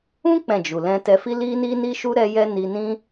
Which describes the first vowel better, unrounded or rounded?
rounded